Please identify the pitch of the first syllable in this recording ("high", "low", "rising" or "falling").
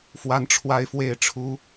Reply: rising